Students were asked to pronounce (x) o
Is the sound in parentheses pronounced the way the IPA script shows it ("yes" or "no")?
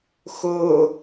yes